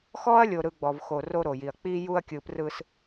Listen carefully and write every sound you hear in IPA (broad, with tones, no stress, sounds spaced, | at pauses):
x ɔ˦ ɐ̯ lʲ o˨ ɾ ɯ˨ ɡ͡b ɔ˨ v x o˨ r o˦ ɾ o˨ j i˨ ɐ̯ k͡p i˦ j u˦ ɐ̯ kʲ ɯ˨ p r ɯ˨ s